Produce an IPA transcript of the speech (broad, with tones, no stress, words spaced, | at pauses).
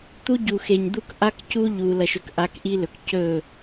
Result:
t̪u˦ɟu˨xe˨ɲ d̪u˦k ʔa˦kcu˦ ʎu˨ lɐ˨ʃɵ˨k ʔa˧kʔi˦lɵ˨k cɵ˦˨